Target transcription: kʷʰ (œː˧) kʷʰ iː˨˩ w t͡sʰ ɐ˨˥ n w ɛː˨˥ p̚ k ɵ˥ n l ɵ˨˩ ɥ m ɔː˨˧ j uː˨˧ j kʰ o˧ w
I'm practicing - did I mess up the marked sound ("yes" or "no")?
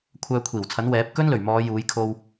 no